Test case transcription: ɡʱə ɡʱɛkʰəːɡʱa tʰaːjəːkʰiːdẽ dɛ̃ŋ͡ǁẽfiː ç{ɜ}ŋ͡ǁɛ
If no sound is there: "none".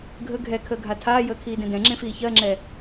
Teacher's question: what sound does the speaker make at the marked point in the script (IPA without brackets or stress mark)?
ɜ